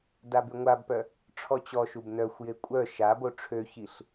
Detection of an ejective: present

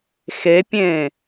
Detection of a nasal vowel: present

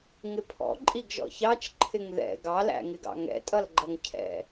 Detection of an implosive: absent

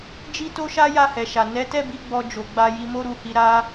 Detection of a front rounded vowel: absent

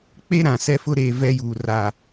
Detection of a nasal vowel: present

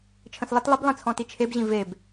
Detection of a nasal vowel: present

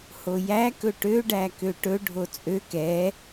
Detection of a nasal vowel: absent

